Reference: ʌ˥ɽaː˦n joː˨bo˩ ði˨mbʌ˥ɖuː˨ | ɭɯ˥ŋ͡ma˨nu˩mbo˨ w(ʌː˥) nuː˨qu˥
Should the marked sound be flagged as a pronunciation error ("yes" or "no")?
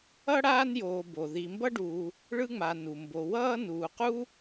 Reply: no